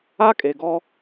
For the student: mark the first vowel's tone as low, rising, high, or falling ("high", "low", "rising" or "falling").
high